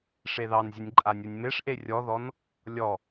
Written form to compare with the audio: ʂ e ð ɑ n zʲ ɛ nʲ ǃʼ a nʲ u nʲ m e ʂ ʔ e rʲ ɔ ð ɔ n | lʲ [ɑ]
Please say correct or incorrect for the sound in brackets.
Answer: incorrect